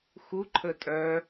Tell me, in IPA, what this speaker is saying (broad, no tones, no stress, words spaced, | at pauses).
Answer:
xuǃʰə tʼœ